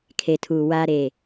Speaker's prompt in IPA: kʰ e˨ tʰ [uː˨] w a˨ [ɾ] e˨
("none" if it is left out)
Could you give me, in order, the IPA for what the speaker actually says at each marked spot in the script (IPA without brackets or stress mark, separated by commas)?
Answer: uː˨, ɾ